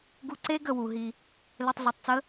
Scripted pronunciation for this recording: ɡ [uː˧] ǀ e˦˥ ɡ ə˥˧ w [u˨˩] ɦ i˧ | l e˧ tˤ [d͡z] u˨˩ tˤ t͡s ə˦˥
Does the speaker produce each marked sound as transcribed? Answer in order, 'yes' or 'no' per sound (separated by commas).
no, yes, no